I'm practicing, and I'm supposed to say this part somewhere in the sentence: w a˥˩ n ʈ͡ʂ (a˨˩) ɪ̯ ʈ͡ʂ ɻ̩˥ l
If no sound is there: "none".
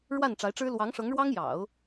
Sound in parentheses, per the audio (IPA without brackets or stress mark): a˧˥